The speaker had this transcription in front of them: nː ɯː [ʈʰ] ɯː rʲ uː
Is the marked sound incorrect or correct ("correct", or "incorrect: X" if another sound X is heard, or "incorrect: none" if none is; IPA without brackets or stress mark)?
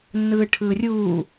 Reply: correct